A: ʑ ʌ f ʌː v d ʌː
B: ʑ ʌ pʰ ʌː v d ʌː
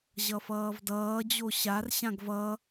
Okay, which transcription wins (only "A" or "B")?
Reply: A